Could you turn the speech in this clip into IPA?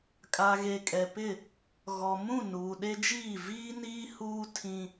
kʼa˨ɣe˨kʼɛ˨pɪ˦˨ | ɣɔ˨mũ˦˨ nuː˨ɗe˦d͡ʒiː˦˨ viː˦niː˦ huː˦tʰĩ˦

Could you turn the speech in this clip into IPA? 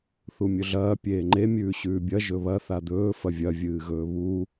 θumʲɵɮɐː pʲeːŋ͡ǃe mʲʉːɕʉːbʲɐ ʒɵβɐ θad̪ɵː fɐvʲɐ vʲɨːɣɵːβu

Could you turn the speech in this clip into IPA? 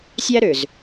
sʲæ˦ɾø˨z

